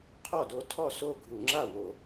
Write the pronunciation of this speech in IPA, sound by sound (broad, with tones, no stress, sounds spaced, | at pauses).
qʰ ɔ˥˩ d o˦ tʰ ɔ˥˩ s o˥˩ ɡʱ u˧˩˧ ŋ͡ǁ a˥˩ w o˧˩˧